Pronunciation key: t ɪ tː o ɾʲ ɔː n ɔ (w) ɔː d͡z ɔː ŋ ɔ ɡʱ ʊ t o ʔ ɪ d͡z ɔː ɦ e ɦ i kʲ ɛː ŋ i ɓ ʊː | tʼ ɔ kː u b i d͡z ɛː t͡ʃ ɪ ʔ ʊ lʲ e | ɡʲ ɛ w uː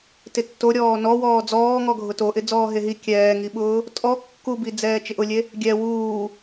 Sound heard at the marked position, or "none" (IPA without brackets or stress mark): w